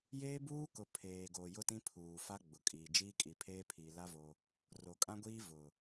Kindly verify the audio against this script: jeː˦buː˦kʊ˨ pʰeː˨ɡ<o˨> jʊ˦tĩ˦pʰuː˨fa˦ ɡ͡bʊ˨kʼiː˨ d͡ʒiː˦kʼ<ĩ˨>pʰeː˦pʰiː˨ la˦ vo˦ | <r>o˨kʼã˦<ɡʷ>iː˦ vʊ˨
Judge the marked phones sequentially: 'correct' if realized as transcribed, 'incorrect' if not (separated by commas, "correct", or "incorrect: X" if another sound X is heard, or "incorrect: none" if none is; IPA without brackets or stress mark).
correct, incorrect: i˨, correct, correct